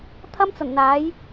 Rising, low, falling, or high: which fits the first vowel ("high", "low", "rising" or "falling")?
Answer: high